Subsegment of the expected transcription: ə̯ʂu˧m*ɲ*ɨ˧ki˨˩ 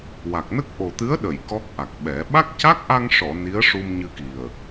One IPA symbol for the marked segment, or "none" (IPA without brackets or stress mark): ɲ